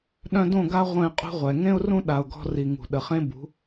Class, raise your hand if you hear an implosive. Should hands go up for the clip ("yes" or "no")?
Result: yes